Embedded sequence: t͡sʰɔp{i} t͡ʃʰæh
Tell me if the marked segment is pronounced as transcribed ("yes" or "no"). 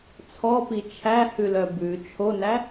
yes